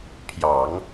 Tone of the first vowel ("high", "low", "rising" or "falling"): low